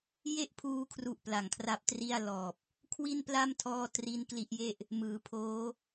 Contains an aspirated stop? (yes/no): yes